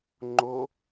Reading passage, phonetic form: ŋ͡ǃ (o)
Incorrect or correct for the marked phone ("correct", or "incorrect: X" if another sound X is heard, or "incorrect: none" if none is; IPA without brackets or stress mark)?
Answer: correct